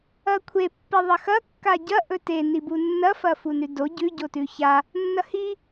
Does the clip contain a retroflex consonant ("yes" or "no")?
no